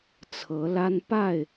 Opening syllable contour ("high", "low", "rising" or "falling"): rising